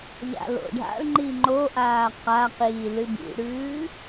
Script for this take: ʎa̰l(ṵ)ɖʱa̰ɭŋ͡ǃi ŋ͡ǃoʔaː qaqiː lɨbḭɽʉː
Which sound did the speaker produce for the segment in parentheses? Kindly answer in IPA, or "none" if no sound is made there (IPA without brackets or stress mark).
o̰